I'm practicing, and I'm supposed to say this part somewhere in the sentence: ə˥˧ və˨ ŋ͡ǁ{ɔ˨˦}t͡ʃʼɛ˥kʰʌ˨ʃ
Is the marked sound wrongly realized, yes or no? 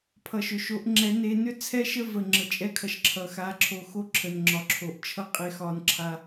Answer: yes